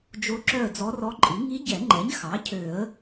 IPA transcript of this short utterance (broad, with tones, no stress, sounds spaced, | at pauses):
d͡ʒ o˧˥ ǁ œ˦˨ ə̯ d͡z ɔ˧˥ r ɔ˧˥ ǃʼ i˩˥ ŋ i˧˥ ɟ ɛ˨˩˦ ŋ͡ǃ ɛ˩˥ ɲ x ɑ˩˥ cʰ ø˨˩˦ ə̯